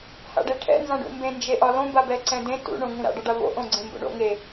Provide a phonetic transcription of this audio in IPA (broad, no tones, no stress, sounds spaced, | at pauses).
h a̰ ɖ e ʈʰ ɛ̰ n z ã ɖ ṵ m b ẽ n d͡ʒ e ʔ ɒ l õ b a b ɛ ǀ ɛ̃ d ẽ t ṵ ɳ õ ŋ ũ ɾ a̰ ɖ ɒ ɖ a v o̰ ʔ õ ɡ͡ǀ ẽ m b o̰ ɳ o̰ ŋ e